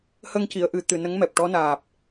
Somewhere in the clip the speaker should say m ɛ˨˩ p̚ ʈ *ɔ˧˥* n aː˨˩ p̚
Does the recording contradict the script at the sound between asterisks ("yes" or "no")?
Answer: no